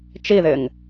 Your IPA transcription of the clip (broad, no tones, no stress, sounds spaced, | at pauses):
t͡ʃ i ð ɪ ŋ